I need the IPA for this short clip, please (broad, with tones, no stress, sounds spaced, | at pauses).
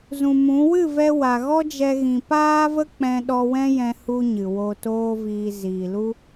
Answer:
z ũ˨ m ũ˨˦ w ɨ˦˨ v ɛ˧ w a˨ ɣ ɔ˦ d͡ʒ ɛ˧ ɣ ĩ˨ p aː˦ v ə˦ k͡p ɛ̃˧ ɗ ɔ˧ w ɛ̃˦ j ɛ̃˧ h u˧ ɲ ɨ˨ w o˧ t oː˦ v iː˧ z iː˨ l u˦